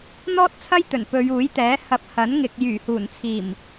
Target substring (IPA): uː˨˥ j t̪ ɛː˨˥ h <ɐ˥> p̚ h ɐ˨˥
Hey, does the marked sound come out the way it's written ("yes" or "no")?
no